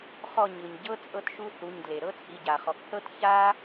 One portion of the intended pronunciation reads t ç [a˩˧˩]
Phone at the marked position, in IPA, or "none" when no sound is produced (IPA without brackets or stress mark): a˥